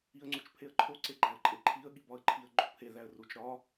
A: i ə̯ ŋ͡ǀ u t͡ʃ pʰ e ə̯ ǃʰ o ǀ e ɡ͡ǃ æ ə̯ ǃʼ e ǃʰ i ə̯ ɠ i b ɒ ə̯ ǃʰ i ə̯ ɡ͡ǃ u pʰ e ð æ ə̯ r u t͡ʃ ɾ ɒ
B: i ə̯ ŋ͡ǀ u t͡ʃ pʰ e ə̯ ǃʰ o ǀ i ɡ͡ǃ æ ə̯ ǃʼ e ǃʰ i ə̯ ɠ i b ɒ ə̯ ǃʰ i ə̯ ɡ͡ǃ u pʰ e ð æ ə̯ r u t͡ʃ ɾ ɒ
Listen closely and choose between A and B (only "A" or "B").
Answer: A